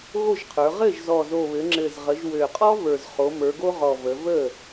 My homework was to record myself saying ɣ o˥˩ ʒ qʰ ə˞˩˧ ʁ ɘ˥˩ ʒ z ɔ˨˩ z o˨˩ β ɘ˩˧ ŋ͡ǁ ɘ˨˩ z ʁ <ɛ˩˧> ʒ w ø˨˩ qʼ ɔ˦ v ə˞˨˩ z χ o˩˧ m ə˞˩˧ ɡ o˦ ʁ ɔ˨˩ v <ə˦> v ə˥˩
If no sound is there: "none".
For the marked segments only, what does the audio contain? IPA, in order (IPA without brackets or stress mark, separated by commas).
ə˩˧, ə˩˧